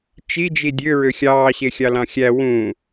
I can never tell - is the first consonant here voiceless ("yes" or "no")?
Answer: yes